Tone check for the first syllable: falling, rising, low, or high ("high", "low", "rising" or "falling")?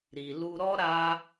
low